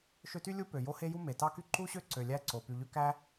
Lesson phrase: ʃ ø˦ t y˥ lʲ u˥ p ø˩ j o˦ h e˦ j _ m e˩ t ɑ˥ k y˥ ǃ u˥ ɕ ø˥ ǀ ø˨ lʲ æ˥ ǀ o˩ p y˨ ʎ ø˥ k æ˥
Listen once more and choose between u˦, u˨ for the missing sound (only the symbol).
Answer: u˦